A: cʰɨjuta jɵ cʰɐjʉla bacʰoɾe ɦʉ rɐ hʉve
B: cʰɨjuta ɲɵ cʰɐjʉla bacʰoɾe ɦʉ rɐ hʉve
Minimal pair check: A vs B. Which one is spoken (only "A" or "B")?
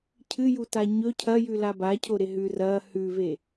B